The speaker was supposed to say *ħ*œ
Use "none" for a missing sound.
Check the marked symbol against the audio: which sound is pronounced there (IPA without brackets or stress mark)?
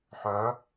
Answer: ħ